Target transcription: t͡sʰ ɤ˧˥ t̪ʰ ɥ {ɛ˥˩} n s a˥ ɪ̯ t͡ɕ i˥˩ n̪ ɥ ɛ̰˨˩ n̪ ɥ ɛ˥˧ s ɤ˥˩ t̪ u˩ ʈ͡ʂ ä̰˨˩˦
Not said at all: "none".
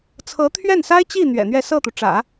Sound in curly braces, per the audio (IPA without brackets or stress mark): ɛ˥˩